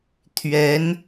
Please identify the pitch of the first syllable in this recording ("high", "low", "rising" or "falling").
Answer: rising